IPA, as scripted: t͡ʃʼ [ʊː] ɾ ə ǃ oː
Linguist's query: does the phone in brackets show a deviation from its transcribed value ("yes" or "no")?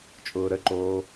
no